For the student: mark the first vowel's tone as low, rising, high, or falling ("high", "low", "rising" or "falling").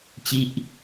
falling